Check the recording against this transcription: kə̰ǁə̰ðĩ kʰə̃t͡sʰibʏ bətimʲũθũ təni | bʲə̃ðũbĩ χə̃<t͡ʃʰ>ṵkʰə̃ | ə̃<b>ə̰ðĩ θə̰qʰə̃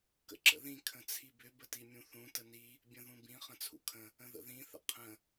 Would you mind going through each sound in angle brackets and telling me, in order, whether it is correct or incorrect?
incorrect, incorrect

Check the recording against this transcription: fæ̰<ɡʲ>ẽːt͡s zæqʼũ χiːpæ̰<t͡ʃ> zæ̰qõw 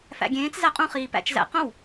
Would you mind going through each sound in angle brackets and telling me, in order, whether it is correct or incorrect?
correct, correct

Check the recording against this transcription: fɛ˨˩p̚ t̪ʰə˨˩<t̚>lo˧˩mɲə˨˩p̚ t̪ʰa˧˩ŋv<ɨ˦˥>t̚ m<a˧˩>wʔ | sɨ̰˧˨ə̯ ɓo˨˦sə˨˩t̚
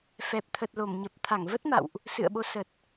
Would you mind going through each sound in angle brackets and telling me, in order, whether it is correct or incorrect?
correct, incorrect, incorrect

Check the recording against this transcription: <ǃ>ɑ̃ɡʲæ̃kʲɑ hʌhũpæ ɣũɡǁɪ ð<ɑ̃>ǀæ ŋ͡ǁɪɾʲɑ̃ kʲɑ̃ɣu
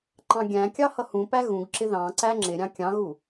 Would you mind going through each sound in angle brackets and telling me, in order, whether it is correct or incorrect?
correct, correct

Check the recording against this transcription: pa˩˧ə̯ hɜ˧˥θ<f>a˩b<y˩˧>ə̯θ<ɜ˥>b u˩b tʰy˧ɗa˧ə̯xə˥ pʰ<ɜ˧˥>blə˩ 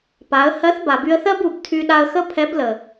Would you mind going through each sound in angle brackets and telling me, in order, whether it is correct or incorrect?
incorrect, incorrect, correct, incorrect

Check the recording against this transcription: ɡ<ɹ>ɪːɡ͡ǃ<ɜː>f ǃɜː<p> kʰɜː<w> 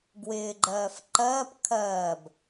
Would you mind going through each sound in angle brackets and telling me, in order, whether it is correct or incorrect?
incorrect, correct, correct, incorrect

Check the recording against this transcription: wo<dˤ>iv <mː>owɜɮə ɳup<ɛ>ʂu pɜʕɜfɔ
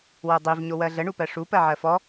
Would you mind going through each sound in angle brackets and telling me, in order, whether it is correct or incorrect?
correct, incorrect, incorrect

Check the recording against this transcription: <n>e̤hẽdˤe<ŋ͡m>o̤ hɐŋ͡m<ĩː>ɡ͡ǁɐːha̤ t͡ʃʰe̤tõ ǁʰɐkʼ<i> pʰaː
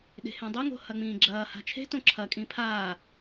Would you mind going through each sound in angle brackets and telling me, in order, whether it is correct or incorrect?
incorrect, incorrect, correct, incorrect

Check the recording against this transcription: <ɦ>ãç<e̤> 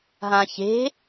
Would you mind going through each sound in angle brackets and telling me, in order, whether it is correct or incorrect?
correct, correct

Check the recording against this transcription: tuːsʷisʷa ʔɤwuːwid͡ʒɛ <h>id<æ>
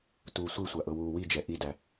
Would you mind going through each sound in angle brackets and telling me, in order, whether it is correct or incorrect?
incorrect, correct

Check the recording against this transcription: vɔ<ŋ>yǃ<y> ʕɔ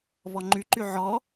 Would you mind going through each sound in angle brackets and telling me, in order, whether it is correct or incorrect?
incorrect, correct

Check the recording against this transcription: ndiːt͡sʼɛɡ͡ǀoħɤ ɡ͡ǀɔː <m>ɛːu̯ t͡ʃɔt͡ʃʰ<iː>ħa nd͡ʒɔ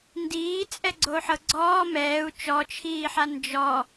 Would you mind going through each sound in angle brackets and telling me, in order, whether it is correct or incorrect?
correct, correct

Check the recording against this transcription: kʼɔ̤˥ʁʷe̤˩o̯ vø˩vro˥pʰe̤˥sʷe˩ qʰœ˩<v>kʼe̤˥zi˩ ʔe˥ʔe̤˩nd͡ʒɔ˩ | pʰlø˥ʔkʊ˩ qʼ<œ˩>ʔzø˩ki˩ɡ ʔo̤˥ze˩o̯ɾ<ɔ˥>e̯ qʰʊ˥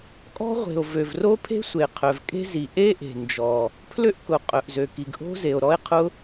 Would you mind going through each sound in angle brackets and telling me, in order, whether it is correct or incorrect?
correct, correct, correct

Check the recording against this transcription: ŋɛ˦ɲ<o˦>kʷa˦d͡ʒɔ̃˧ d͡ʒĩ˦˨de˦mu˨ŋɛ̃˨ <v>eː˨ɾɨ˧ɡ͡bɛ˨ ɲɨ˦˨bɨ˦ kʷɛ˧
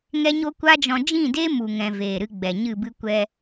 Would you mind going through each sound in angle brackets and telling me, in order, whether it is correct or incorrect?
correct, correct

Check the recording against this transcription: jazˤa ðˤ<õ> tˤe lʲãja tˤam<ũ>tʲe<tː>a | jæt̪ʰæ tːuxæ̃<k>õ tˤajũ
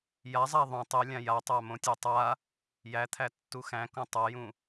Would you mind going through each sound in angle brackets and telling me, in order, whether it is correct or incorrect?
incorrect, incorrect, incorrect, correct

